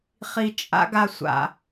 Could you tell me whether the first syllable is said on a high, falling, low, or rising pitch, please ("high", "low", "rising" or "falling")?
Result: low